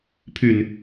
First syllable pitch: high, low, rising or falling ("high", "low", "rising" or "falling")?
low